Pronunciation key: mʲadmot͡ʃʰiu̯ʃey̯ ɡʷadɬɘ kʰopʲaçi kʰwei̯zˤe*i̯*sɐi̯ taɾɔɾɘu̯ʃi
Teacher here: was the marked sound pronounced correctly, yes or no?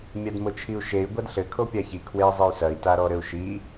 no